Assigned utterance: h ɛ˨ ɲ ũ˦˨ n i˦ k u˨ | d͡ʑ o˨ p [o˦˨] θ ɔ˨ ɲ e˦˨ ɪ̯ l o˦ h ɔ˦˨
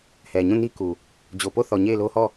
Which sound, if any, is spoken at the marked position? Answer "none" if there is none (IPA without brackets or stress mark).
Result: o˦˨